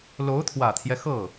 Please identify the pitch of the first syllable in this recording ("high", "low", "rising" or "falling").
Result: rising